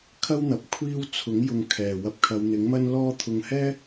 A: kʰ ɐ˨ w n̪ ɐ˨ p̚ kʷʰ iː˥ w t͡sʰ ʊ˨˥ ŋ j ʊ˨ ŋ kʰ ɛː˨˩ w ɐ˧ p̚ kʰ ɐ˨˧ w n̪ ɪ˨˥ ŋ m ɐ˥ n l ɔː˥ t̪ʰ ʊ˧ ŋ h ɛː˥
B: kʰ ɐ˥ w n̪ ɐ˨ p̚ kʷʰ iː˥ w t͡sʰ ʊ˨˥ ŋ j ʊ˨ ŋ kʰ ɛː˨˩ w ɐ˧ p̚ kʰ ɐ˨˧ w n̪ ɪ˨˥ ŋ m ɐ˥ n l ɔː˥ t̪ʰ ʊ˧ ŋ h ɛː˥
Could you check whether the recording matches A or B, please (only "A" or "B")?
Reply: B